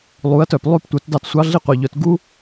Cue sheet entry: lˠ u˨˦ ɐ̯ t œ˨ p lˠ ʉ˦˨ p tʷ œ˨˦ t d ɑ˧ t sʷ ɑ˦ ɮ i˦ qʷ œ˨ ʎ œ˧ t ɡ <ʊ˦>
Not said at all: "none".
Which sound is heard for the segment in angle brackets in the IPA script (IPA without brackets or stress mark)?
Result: u˦